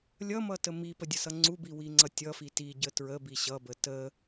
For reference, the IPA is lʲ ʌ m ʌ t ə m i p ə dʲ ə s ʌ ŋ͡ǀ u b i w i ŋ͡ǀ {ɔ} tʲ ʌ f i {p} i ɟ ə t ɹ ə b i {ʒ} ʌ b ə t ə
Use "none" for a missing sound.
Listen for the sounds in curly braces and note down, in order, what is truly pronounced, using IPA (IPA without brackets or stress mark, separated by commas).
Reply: ʌ, t, ɕ